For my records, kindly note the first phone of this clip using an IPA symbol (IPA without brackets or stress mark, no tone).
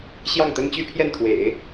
ɕ